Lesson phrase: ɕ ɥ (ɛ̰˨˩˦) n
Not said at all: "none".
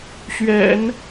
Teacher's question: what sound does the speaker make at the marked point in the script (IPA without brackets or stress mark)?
ɛ̰˨˩˦